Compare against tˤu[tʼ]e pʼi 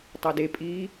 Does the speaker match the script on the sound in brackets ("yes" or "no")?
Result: no